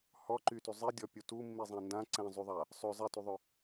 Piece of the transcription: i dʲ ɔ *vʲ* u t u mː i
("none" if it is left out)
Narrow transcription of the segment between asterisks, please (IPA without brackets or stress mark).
pʲ